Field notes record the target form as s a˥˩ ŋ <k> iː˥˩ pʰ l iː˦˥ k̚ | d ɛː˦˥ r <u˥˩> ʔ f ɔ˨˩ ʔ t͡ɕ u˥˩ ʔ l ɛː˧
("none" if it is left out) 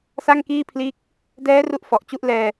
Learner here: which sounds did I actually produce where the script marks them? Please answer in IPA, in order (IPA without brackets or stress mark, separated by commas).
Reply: k, u˥˩